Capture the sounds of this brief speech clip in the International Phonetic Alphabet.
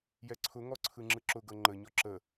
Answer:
jɛǀʰʊ ŋɔǀʰɯŋ͡ǁɯǁʊ ɡɤŋ͡ǃə ɲɔǁə

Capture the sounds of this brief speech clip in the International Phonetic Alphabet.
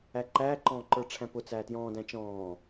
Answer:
æǃæː ǃɔ̃ːǃə˞ʈ͡ʂʰæ̃pʊ t͡sæːtjɔ̃ː dæ̃t͡ʃɔ̃ː

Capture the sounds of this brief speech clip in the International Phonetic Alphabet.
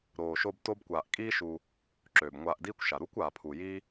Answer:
ɾoː˨ʃo˧b to˦bkʷaː˧ʔ kʼiː˦ʃu˧ | ǁøː˨bŋʷaː˧ʔdiː˦kʷʃa˨ ɾu˦kʷaː˨pʰu˨ ji˦

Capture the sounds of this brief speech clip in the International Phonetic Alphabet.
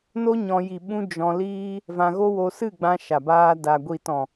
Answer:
no˦ɲɔ̃˧ ji˨ɓũ˧ d͡ʒɔ̃˧liː˦ | vã˧ɣo˦wo˧ sɨ˦˨ɡ͡bã˧ ʃa˨baː˧da˨ ɡʷi˨tɔ̃˨

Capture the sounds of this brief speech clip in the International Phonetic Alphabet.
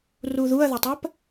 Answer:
ruðuɐ̯ðətˤɜp

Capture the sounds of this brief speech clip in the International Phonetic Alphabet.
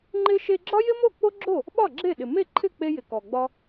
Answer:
ŋ͡ǃɪ˧ʃe˧ ɡ͡ǁɒ˥jɪ˥mo˥˩ k͡po˥ɡ͡ǁo˥˩ | ɓɒ˥˩ɡ͡ǁe˥˩ɗɪ˩ me˥˩ǃʰɪ˥˩ k͡pe˧ jɪ˩kɔ˩ɡ͡bɒ˧

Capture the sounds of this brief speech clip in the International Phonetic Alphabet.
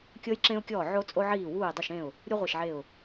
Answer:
kʲɤ˧jǁẽ˧ʊ̯kʲɔː˧˩ ʕo˧t͡sʼo˧ʕiː˧˩ wuː˧˩ɪ̯dˤu˧˩ʃẽ˧˩ʊ̯ | ɾʲu˧ ʁʷe˧˩ʃʕe˧˩ʊ̯

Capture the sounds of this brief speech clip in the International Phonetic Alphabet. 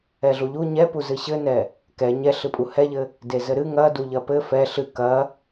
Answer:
ɛɮuʎu ɲɛpu zɨɕɘnɛ | kɛ ɲɛɬɨpʼu hɛʎɘ | dezɘɾɨ ŋɐdu ʎɐpɘ fɛ ɬɨ kɐ

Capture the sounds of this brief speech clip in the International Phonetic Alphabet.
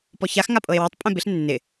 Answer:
pɔçax ŋapʼɤe̯wetˤ pʼɛ̃bɪɬ nːɪ

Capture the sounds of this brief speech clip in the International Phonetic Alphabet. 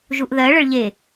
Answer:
ʒuʔðɜ ɭəɭʎe

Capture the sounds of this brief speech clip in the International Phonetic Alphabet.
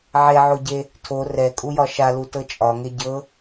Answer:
ʕeʕoɟe | tʰo rɛkʼujɒ ʃalutɤ t͡ʃʼɒŋe ɟɤ

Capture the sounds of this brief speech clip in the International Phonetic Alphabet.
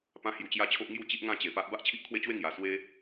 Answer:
pã˦hju˧t͡ɕja˦t͡ɕʰo˦ʔ ŋju˥˧t͡ɕi˦ʔ ŋã˥˧t͡ɕe˨˩pa˦ʔ ba˦ʔt͡ɕʰi˦ʔkʰwe˦t͡ɕwe˥˧ ŋja˨˩ swe˦

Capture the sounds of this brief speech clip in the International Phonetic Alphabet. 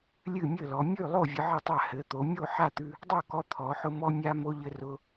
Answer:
lʲɨ˥˩mʲɘ˥˩lɔ˩˧ mʲʉ˥˩lˠo˥˩ vʲɨ˧ʕɨ˥˩tˤa˥˩ hɘ˩˧t̪o˩˧ mʲo˥˩ħa˥˩t̪ʉ˧ | dˤo˥˩kɔ˧t̪ʰɔ˩˧ħʊ˧ mɔ˧mʲa˧ mo˧ʎɘ˧rʊ˧

